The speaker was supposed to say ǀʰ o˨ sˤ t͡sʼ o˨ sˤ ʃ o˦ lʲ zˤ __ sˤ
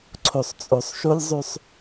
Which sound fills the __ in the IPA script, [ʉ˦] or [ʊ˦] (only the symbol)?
ʉ˦